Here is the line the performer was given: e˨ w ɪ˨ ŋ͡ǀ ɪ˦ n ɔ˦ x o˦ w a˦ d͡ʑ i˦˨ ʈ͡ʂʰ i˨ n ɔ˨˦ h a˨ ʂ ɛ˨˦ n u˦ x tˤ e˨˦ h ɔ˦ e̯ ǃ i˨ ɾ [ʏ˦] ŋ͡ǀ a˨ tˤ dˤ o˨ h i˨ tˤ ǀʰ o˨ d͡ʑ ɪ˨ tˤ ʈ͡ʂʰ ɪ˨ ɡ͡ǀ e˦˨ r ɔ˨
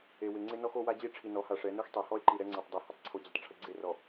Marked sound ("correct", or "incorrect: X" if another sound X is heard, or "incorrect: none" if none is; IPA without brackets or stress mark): incorrect: ɛ˦